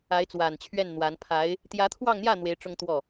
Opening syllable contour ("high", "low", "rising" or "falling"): rising